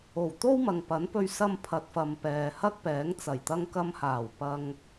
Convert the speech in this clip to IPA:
o˨˩ w t̪ o˥ w m ɐ˨ ŋ p ɐ˨˥ n p ɵ˧ ɥ s ɐ˧ m pʰ ɐ˨ t̚ f ɐ˨ m p ɛː˨ h ɐ˥ k̚ p ɛː˨˥ ŋ t͡s ɐ˨˩ j t̪ ɐ˧ ŋ k ɐ˧ m h aː˨˩ w p ɐ˨ ŋ

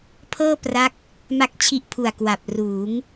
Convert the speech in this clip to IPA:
pʰ ɤː˥˩ p r a˦˥ k̚ | m a˥˩ k̚ t͡ɕʰ i˥˩ ʔ pʰ u˨˩ a̯ k w a˨˩ p̚ r uː˩˦ ŋ

